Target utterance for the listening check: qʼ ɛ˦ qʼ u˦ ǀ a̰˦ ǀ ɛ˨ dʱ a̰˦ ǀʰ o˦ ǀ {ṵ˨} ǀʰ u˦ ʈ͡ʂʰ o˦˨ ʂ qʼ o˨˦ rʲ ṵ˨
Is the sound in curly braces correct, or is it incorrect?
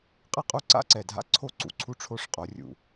correct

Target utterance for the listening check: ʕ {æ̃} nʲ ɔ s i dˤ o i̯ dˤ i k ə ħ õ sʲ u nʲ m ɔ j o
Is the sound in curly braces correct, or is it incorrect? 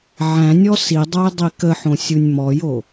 correct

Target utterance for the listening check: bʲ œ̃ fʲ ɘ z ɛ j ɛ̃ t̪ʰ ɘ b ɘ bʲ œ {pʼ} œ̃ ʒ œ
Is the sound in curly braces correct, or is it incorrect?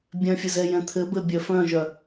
incorrect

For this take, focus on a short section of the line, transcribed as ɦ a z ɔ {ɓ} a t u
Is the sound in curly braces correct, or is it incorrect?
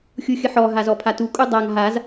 incorrect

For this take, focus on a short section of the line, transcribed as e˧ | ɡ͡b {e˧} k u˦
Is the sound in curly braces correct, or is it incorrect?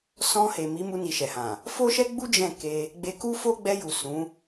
correct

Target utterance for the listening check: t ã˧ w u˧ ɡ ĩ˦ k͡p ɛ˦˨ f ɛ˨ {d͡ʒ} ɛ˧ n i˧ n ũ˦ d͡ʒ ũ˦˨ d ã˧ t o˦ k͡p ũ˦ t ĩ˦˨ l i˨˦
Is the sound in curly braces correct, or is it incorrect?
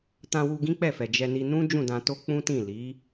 correct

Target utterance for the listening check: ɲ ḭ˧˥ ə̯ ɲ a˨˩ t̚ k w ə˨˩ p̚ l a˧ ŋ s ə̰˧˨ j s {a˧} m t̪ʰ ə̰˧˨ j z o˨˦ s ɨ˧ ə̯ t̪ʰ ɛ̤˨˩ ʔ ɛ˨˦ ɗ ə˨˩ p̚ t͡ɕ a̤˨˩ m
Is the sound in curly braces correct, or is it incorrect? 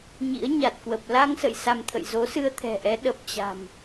correct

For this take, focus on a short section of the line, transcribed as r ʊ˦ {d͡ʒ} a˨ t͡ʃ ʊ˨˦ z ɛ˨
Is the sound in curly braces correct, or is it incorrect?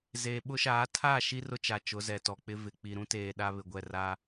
incorrect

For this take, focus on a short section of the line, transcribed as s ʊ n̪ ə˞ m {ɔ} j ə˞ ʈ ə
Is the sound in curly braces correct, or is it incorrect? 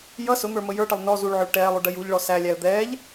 incorrect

